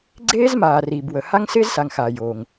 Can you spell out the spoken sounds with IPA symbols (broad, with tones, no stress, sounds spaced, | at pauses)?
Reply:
ɡ͡ǀ eː˥ z m aː˨ r iː˨ b w ə˨ h a˥ ŋ s ɪː˥ z s a˨ ŋ x aː˩ j oː˩ ŋ